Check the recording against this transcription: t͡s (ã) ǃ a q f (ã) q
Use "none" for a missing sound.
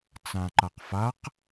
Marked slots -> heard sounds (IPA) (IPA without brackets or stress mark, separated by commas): ã, a